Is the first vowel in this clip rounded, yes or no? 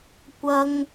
no